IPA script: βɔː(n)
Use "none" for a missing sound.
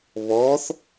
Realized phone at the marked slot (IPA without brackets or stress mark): θ